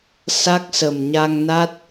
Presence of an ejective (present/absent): absent